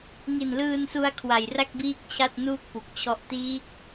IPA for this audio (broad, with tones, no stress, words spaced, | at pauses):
ŋi˨˩nlɯː˧nsu˧a̯ kʰwa˨˩jra˥˩k̚biː˦˥k̚ t͡ɕʰa˥˩t̚nuː˥˩k̚pu˨˩k̚t͡ɕʰɔ˦˥ʔ tiː˦˥k̚